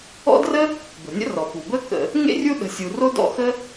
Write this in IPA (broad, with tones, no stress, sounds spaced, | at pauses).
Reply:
ɔ̰˥ d r ə˥ | b ə̤˩ nʲ ə̰˥ r ɔ˩ p u˩ b ə˥ k ə̰˨ | ŋ ḛ˥ rʲ u˦ ɗ ə̤˨ sʲ u˨ r o˥ d ɔ̰˦ x ə˥